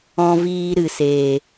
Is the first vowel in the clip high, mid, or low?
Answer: mid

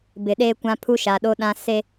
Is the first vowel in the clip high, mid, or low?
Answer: high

